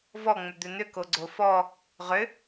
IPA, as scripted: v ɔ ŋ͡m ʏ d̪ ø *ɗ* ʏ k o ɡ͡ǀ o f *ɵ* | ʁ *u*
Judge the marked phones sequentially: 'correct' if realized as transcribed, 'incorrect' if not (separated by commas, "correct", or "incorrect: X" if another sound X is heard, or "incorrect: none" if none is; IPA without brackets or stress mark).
incorrect: n, incorrect: ɔ, incorrect: ʏ